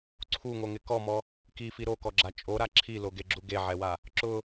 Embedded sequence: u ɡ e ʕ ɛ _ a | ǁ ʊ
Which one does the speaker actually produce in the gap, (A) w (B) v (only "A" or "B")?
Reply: A